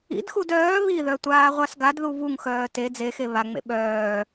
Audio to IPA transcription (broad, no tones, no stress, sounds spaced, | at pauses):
ḭ d x u d œː β i ð œ tʷ aː ʁʷ a s ɡ a d ð u v u ŋ x œː t e d͡z e x e β a ŋ͡m ḛ ɓ œː